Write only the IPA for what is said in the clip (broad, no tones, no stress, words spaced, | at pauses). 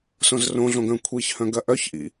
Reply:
sõzrõɮõɡœ̃ kʷʰiçhœ̃ɡɐ ʔœçʔḭ